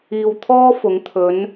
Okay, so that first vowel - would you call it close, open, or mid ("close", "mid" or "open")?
close